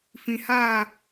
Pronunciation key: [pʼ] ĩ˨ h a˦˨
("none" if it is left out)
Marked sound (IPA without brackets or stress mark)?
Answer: f